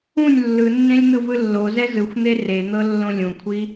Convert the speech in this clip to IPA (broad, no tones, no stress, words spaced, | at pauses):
ũnʲ lːɯnːẽlʲ n̪ɯvɯlːozɛ zɯxʷn̪e ren̪ɤ lːõlʲũkʷʰi